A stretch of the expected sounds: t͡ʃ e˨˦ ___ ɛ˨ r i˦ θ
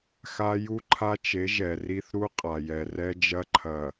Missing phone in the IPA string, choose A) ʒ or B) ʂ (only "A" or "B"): A